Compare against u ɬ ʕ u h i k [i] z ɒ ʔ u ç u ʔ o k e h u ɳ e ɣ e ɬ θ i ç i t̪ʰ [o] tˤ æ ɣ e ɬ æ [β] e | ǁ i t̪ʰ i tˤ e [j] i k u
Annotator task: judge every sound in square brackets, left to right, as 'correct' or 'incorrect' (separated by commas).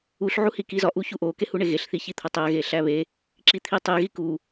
correct, correct, correct, incorrect